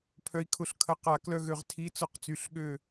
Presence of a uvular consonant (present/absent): present